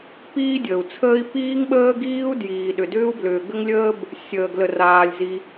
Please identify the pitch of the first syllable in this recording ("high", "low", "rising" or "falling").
high